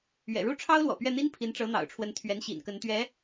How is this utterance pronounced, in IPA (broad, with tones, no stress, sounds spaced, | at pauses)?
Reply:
ɥ ɛ̰˨˩ ɻ u˥˩ ʈ͡ʂʰ ɑ˥ ʊ̯ l w ɔ̰˨˩ p ɥ ɛ˥˩ n̪ i˥ n pʰ i˧˥ n ʈ͡ʂ ɤ˧˥ n̪ ɑ̰˨˩ ʊ̯ ʈ͡ʂʰ w ə˧˥ n t̪ʰ ɥ ɛ˧˥ n ɕ ḭ˨˩ n k ə˧˥ n t̪ ɥ ɛ˧˥